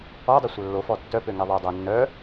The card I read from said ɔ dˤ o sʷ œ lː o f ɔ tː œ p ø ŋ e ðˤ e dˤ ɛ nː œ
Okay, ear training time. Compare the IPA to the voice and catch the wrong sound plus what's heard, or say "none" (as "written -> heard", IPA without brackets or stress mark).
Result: none